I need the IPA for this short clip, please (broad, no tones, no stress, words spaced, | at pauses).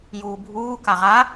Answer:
juːbʱuː kaʁa